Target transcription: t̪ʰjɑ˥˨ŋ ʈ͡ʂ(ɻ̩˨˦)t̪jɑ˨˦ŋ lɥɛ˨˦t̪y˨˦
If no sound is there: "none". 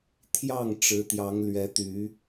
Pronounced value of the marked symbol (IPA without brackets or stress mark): ɻ̩˨˦